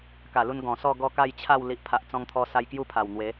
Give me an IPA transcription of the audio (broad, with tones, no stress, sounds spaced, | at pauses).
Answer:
k a˨˩ l u˧ n ɡ ɔ̃˨˩ s ɔ˥˧ ɡ ɔ˥˧ k a˥˧ j t͡ɕʰ a˥˧ w l i˨ ʔ pʰ a˨ ʔ t͡s ɔ̃˧ ŋ t̪ʰ ɔ˧ s a˧ j k j u˦ pʰ a˨˩ w n̪ w e˨˦